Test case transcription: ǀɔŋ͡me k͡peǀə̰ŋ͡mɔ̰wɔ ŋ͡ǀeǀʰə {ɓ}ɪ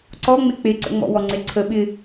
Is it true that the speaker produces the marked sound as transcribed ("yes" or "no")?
yes